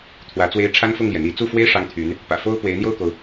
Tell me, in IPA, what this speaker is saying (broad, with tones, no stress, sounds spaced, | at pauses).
t̪ʰ w ä˧˥ t͡s w e˥ ɪ̯ ʈ͡ʂʰ a˥ n f ʊ˥˩ ŋ l j ɛ˩ n̪ i˧˥ t͡s u˥˩ f w e˥ ɪ̯ ʂ ɑ˥ ŋ t̪ʰ y˧˥ n | p ä̰˨˩ f o˥ ʊ̯ p w e˧˥ ɪ̯ n̪ j o˥˩ ʊ̯ k o˩ ʊ̯